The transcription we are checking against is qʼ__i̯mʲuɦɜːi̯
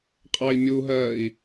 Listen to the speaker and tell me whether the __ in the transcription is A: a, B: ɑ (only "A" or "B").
B